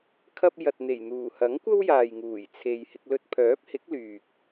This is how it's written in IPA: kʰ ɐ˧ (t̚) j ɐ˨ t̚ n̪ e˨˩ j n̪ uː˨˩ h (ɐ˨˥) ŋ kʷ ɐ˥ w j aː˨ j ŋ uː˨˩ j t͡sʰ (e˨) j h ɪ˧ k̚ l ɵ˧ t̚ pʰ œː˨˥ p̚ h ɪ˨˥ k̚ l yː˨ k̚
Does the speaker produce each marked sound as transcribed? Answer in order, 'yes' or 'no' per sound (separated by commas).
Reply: no, yes, yes